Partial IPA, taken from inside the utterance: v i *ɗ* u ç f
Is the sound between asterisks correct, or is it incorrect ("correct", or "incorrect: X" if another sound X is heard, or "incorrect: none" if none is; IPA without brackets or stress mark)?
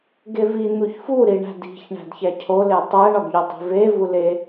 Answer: incorrect: n̪